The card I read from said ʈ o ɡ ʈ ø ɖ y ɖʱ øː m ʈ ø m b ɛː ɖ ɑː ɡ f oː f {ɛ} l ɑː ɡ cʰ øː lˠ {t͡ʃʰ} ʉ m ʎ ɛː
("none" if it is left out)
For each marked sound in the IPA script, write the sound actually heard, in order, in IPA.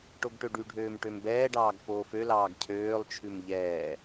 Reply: ø, t͡ʃʰ

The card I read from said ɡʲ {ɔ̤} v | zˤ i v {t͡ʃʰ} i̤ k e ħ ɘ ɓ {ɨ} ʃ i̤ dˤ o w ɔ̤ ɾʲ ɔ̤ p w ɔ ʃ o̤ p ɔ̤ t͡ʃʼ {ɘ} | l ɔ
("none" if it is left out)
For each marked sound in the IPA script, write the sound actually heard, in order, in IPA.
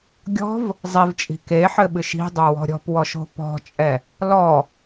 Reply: ɔ̤, t͡ʃʼ, ɨ, ɛ

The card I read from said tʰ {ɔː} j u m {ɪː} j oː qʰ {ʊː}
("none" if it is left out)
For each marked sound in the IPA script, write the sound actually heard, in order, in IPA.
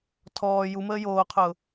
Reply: ɔː, əː, ʊː

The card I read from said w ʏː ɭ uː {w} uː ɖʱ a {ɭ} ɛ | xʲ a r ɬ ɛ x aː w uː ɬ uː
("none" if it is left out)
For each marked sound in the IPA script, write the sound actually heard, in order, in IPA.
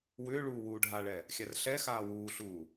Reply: w, ɭ

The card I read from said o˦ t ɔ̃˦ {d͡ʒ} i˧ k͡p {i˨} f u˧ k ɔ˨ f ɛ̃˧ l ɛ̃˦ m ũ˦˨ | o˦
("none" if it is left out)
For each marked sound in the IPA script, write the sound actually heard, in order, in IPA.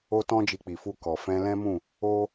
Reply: d͡ʒ, i˨

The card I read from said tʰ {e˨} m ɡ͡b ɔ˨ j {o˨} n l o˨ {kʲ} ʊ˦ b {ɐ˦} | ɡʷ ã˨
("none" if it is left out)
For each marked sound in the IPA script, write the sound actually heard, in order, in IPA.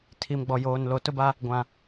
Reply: i˨, oː˨, t, a˦

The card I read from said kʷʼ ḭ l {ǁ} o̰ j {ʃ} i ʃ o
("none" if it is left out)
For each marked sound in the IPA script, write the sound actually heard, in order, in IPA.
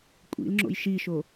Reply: ŋ͡ǁ, ʃ

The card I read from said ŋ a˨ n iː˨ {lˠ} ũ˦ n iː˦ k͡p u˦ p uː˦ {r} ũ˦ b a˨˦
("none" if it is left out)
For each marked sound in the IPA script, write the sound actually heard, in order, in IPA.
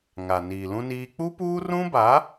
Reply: l, r

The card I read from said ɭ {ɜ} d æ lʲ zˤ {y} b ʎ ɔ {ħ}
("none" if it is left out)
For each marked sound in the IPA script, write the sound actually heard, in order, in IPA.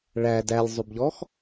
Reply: æ, y, x

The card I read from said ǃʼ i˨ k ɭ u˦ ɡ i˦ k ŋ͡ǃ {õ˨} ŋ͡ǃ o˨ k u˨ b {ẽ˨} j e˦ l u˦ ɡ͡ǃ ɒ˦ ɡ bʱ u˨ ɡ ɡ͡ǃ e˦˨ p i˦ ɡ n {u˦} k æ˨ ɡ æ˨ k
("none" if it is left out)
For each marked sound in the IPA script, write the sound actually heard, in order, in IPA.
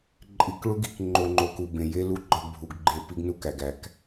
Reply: o˨, ẽ˨, u˦

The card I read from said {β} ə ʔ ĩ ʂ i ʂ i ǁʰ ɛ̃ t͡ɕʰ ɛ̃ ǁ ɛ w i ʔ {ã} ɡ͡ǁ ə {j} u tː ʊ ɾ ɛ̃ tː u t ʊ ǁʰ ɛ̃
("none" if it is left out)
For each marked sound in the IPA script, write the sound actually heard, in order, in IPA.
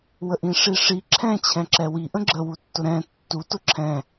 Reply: w, ə̃, w

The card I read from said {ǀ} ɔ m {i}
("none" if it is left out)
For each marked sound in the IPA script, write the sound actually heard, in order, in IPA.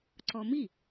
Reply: ǀ, i

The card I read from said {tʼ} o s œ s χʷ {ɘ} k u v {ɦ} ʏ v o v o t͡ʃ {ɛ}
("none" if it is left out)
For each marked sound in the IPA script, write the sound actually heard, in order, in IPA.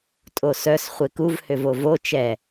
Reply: tʼ, e, h, ɛ

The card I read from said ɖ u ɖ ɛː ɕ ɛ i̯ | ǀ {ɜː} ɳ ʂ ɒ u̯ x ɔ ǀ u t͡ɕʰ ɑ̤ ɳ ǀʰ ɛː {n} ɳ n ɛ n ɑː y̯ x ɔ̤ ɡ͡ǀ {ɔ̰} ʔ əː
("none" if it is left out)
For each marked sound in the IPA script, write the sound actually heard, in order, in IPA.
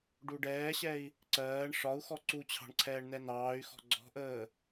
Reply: ɜː, none, ɔ̤

